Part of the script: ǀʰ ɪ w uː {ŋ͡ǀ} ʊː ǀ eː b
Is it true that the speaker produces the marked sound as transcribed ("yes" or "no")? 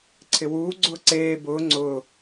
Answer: no